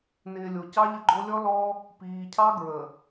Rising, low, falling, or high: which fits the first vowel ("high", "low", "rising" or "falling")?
low